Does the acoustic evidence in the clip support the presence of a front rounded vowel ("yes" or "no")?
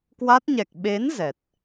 no